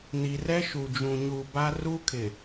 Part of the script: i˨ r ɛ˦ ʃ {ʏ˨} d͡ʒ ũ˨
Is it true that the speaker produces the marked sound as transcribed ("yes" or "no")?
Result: no